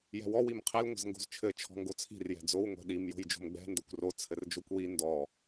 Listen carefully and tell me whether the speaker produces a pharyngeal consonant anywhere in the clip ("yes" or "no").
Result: no